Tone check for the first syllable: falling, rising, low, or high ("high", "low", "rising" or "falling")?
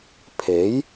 rising